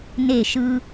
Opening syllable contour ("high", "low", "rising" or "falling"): falling